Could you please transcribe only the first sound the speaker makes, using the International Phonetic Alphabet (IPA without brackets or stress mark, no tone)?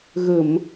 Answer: ɣ